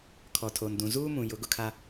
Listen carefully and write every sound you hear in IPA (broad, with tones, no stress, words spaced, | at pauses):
kʰɔ˨tʰo˨ndũ˨ zuː˦mũ˨ jʊ˨˦ɡʊ˨kʰa˦